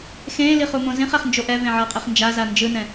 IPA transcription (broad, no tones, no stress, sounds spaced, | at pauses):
x ẽː l i χ u m õ z ĩ χ ɛ χ n d͡ʒ o ʔ ɛ v ẽ ʕ ʌː qʼ i χ n d͡ʒ a z a n d͡ʒ ɯ n ɛ̃